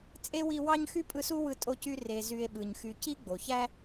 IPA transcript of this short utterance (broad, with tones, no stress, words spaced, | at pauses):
t͡sʼe˥wi˦wɑ˥ɲ xy˥pʼɯ˦su˥ wɯ˦tʼo˦cy˦ re˨ zy˨e̯ɓɯ˩ɲxy˨ ci˦ɡ͡bo˩çæ˦